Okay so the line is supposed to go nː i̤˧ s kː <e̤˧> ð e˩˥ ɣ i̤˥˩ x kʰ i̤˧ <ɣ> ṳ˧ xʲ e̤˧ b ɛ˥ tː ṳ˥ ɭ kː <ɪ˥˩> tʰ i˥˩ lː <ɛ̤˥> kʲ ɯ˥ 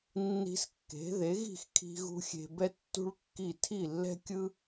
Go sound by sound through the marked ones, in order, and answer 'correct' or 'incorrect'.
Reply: incorrect: e̤˩˥, correct, incorrect: i˥˩, correct

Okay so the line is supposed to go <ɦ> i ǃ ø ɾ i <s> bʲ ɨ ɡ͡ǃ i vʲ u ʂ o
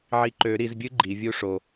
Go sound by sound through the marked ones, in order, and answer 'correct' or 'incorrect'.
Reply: incorrect: ʕ, incorrect: z

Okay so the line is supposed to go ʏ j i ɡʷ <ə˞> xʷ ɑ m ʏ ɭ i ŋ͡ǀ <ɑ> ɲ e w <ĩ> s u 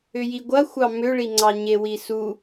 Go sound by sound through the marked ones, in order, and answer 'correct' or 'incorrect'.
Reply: incorrect: ɐ, correct, incorrect: i

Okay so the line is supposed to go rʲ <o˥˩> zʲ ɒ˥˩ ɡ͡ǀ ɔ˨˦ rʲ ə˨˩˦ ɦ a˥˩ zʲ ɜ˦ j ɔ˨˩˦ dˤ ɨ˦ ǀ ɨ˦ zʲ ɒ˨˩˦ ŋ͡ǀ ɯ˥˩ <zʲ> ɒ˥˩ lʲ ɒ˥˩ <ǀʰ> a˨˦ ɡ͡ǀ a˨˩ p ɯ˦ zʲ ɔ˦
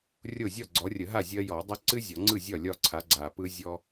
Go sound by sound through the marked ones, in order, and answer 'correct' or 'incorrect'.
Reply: correct, correct, correct

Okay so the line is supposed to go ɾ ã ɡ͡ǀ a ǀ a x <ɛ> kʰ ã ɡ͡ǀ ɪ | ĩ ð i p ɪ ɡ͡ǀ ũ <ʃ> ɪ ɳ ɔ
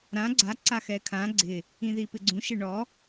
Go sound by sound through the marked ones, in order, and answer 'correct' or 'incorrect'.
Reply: correct, correct

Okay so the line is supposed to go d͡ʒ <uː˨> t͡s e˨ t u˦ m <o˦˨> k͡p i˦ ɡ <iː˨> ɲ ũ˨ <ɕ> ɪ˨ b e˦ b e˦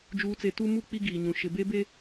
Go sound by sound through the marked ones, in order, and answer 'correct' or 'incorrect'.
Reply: correct, incorrect: u˦˨, correct, incorrect: ʃ

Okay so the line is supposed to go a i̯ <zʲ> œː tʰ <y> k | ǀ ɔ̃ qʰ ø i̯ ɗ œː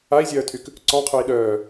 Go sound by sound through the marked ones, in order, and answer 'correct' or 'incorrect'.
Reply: correct, correct

